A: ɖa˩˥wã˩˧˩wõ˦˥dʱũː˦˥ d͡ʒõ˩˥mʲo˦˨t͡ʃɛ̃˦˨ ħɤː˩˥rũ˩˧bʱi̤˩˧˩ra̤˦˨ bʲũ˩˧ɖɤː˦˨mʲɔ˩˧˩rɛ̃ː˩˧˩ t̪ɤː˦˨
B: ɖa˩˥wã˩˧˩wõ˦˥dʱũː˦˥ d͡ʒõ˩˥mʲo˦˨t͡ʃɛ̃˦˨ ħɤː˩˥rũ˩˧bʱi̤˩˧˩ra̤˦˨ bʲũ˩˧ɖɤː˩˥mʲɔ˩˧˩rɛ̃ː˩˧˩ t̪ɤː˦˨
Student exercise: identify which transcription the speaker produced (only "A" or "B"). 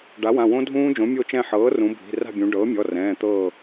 B